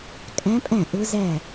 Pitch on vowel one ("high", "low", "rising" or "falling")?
rising